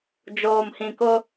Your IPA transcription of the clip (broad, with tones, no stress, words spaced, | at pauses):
d͡ʒoː˨mhĩ˨kʊ˦